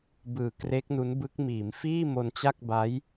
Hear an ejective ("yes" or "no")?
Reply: no